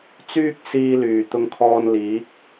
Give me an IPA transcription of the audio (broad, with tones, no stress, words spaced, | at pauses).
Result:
t͡syː˥k̚ siː˧lyː˨˩t̪ʊ˧ŋkʰɔː˧n liː˨˥k̚